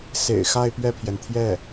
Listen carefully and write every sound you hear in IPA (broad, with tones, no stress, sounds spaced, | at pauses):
s ḛ˨˩ ɪ̯ x a˥˧ ɪ̯ p ɥ ɛ˥˩ pʰ j ɛ˩ n t̪ʰ j ɛ˥˩